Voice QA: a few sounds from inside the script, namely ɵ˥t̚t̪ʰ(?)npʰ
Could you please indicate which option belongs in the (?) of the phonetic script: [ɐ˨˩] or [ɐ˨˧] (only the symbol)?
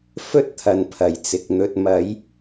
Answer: ɐ˨˧